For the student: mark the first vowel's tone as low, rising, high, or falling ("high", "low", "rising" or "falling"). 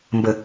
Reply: low